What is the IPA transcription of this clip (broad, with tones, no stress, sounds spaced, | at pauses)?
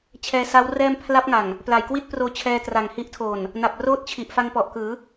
t͡ɕʰ ɛː˧ s a˦˥ w r ɛː˥˩ m pʰ l a˦˥ p̚ ŋ a˨˩ ŋ | p l a˨˩ j k w i˥˩ t̚ p r oː˧ t͡ɕʰ ɛː˧ t r a˨˩ ŋ h i˦˥ ʔ tʰ oː˨˩ n | n a˨˩ p̚ r oː˦˥ t̚ t͡ɕʰ i˨˩ ʔ f a˧ ŋ p ɔ˨˩ ʔ k ɯː˩˦